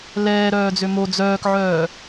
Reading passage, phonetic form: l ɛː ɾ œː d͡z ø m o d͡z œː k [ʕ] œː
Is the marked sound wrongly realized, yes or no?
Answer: no